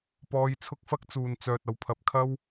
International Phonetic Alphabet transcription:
p ɔː˧ j t͡sʰ ʊ˥ k̚ f ɐ˥ k̚ t͡s uː˨ n t͡s œː˨ t̚ ɐ˨ w pʰ ɐ˨ p̚ kʰ ɐ˥ w

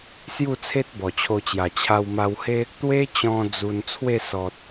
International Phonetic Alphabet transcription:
s j u˥˧ t͡sʰ e˦ t̚ b ɔ˨˩ t͡ɕʰ o˧ t͡ɕ j a˨˩ t͡ɕʰ a˧ w m a˧ w h e˦ | t̪ w e˦ t͡ɕ ɔ̃˧ d͡z u˧ n t͡sʰ w e˥˧ s ɔ˨ t̚

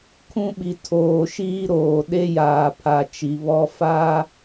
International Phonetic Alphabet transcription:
kʰ ũ˦ ɓ i˨ tʰ oː˨ ʃ iː˦ ɾ oː˨ ɗ e˦ j aː˨ pʰ a˨ t͡ʃ i˨ β ɔ˦ f aː˦

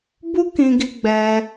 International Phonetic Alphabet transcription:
b u˦ k ĩ˧ ɡ i˧ ɡ͡b ɛ˧

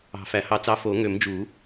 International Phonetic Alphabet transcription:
ɑ̤˨˩˦ f æ˨˩˦ h ɑ˨˥ t͡s ɑ˨˥ f o˨˩˦ ŋ ø˨˩˦ m d͡ʒ u˨˩˦

